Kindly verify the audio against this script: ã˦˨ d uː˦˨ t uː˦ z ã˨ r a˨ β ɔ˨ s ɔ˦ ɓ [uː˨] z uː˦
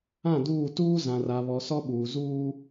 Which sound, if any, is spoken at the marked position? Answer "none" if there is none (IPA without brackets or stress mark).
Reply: uː˨